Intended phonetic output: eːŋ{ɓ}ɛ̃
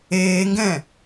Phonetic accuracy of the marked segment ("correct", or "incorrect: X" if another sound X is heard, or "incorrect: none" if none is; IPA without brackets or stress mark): incorrect: ɡ